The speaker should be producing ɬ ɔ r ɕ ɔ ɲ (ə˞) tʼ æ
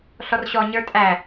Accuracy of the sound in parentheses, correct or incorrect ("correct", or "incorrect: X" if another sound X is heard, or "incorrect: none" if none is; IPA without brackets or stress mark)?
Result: correct